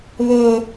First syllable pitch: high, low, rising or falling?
high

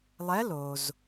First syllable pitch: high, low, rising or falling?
rising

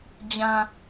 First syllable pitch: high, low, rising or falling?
low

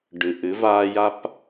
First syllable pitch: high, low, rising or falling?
low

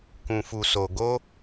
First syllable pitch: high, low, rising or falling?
low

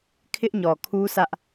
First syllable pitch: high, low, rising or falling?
high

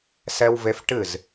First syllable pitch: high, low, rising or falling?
high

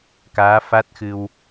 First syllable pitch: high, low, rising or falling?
rising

